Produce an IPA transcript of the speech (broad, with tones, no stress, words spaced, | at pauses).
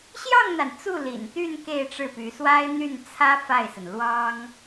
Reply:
ɕjɑ˥˩ŋn̪a˩n t͡su˥˩lḭ˨˩nt̪y˥˧n ke˥˧ɪ̯ʈ͡ʂɻ̩˥˩py˧˥ swa˥ɪ̯n̪y˥˩nt͡sʰä˥ fa˥˩ɪ̯sə˩n lwɑ˥ŋ